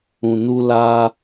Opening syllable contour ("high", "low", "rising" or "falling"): low